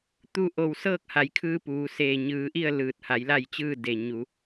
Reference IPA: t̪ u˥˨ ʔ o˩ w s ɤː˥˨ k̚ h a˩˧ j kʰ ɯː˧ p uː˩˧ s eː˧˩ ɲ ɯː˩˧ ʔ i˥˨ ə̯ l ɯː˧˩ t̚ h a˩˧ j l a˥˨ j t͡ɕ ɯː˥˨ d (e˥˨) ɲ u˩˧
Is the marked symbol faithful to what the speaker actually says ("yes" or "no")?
no